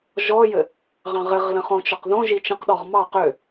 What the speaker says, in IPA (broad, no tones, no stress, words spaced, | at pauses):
ʒɔjɘ | ʁɑ̃ʁɘʁ lə̃χõt͡ʃɔqðõ ʒit͡ʃə̃qɗɔʁ mɑ qø